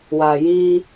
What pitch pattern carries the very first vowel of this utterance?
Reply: low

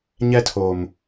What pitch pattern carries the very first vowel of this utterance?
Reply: high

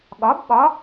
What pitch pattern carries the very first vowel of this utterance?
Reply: rising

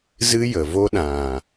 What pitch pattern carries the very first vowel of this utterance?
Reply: high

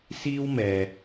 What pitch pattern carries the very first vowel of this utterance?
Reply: high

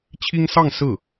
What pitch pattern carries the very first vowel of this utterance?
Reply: high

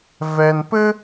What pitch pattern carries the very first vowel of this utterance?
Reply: low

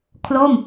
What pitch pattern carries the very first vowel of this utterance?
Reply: falling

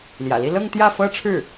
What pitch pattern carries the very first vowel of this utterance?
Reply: low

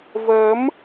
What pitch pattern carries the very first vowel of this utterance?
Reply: rising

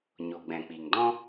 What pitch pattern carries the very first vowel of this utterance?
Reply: low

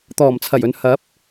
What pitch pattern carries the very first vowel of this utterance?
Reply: low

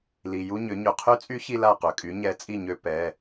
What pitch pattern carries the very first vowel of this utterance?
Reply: low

